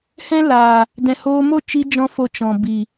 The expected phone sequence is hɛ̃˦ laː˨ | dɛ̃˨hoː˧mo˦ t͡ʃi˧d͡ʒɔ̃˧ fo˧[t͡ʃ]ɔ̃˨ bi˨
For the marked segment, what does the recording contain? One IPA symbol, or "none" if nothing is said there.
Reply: t͡ʃ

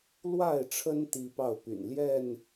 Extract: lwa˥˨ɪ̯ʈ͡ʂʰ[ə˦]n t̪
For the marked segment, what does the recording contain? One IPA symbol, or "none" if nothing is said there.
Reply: ə˦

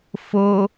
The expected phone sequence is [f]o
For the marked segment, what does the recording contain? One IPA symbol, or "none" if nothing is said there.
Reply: f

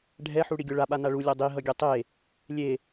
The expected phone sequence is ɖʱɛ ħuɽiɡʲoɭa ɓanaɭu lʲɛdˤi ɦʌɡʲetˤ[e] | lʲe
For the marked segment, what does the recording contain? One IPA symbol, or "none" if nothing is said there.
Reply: e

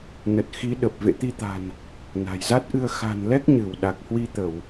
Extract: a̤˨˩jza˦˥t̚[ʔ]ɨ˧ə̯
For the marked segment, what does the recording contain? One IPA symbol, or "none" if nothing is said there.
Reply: ʔ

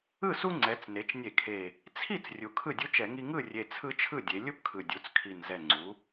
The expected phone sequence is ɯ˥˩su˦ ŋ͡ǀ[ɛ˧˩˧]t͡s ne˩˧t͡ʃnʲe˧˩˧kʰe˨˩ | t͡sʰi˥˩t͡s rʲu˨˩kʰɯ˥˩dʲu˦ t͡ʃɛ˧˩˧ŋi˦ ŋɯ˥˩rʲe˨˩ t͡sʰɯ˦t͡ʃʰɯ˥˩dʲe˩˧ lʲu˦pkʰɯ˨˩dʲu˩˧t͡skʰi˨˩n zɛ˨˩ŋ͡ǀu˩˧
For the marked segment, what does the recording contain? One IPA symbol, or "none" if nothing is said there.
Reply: ɛ˩˧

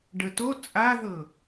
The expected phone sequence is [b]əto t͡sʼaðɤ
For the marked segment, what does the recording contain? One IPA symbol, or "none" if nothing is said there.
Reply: ɖ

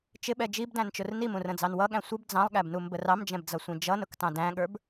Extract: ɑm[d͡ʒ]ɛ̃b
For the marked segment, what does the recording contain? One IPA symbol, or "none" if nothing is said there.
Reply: d͡ʒ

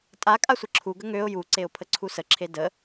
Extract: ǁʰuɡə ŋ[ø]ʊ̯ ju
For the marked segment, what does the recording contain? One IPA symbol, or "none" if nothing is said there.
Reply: ø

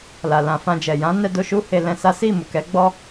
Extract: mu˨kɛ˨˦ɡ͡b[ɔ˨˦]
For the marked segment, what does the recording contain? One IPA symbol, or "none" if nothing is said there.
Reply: ɔ˦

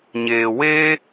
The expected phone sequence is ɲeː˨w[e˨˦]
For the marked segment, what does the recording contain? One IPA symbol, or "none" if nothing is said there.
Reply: e˦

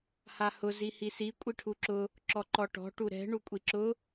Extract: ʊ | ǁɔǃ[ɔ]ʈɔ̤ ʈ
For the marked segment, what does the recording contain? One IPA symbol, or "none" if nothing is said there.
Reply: ɔ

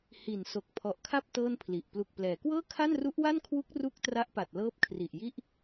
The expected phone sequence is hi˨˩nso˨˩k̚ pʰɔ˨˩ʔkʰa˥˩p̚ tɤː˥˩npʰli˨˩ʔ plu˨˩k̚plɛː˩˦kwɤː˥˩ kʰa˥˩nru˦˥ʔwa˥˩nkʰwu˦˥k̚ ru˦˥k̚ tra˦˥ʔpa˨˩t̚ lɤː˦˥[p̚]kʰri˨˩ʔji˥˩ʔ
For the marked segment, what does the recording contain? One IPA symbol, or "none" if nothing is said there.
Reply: p̚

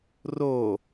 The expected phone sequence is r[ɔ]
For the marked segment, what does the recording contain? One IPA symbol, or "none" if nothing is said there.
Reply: o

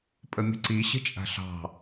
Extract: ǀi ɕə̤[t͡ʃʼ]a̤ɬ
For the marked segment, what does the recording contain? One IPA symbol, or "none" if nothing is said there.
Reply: t͡ʃʼ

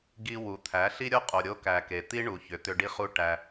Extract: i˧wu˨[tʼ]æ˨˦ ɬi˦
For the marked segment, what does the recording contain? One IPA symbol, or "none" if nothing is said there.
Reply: t̪ʰ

